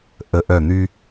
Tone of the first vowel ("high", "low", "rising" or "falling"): rising